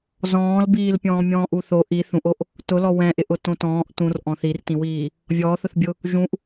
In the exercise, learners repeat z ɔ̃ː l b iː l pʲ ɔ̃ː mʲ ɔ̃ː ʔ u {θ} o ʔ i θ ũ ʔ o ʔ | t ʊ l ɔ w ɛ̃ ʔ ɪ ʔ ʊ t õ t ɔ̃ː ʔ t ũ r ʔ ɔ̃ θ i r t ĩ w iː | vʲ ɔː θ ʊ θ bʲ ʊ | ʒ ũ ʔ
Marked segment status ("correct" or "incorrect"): correct